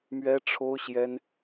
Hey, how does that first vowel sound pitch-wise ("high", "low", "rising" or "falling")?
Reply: high